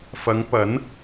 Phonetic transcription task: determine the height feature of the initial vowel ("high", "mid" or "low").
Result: low